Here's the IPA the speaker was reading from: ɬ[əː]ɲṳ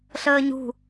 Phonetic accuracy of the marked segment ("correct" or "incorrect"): correct